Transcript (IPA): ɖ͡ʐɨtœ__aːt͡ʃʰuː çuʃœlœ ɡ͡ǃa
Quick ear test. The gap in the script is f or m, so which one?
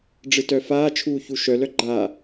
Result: f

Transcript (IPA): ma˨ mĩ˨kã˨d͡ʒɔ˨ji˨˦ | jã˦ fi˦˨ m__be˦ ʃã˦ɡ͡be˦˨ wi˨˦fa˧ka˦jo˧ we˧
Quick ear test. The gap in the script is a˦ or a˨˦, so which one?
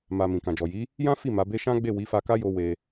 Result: a˨˦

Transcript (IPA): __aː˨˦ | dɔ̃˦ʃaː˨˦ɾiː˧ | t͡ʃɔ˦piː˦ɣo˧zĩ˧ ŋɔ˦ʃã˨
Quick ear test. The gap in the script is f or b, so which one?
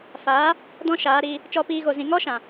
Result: f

